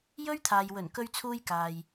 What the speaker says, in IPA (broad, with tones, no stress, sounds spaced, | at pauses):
j ɵ˥ ɥ t̪ʰ aː˨ j w ɵ˨˩ n k ɵ˧ ɥ t͡sʰ uː˧ j k aː˨ j